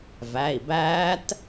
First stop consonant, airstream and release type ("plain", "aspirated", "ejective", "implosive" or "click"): plain